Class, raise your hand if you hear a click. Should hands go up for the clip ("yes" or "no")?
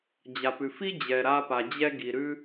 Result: no